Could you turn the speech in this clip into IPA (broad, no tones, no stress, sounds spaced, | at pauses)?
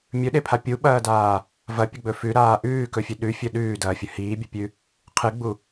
mʲ ɵ ɗ e pʰ a pʲ u ɓ ɐː d aː | v ɐ pʲ ɵ ɡ͡b ɵ f ʉ ɾ aː ʔ ʉː k ɵ fʲ ʉ ɗ ʉ fʲ ɵ ɗ ʉː d ɐː fʲ ɵ h iː bʲ ɵ pʲ ʉ | qʰ ɨ ɡ͡b u